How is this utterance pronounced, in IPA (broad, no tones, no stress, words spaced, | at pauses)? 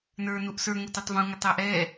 nə˞ nuʔsə˞ ŋʊtʊtˤvũ ŋɪtˤæʔɛː